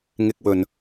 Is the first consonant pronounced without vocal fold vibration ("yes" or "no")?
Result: no